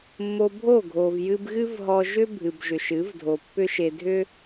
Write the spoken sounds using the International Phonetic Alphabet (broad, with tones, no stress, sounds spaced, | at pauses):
mː o˧ bʱ o˦˨ ɡʱ o˨ v j ɨ˧ b ɣ ɨ˦ v ɦ ɔ˧ ʒ ʏ˦ bʱ ɨ˨ b ʒ ʏ˨ ʃ ɨ˨˦ v dʱ o˨ pː ʏ˦ ʃ e˧ dʱ ʏ˦